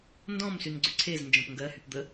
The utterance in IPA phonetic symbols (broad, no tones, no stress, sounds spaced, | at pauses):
n d ɔ̃ m s y n ɡ͡ǀ ø ǀʰ e z n d͡ʒ ɔ̃ p ŋ ɡ ɜ h y p d̪ ə